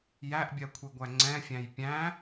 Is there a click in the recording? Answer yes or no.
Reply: yes